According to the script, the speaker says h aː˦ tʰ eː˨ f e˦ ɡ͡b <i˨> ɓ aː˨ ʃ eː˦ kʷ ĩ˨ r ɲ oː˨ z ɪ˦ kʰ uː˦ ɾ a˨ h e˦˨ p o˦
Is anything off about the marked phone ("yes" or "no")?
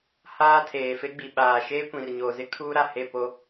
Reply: no